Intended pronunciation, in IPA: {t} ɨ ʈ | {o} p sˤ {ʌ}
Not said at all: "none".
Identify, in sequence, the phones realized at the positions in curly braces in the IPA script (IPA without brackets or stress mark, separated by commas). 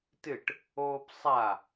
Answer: t, oː, a